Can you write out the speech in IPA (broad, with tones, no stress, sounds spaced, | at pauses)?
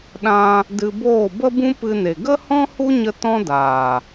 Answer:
ɗ ã˦ | d ɨ˧ b oː˦˨ b ə˦ b ũ˦ p ɨ˧ n e˨ ɡ ə˦ h ɔ̃˦ h u˦ ɲ ə˧ t ɔ̃˦ d aː˨